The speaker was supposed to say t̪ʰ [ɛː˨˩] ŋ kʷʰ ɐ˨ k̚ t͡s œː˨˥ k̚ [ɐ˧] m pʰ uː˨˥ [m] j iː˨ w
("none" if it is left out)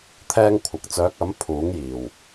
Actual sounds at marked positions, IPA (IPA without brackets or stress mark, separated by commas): ɛː˧, ɐ˨˥, ŋ